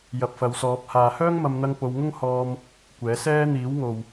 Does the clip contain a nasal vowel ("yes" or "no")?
no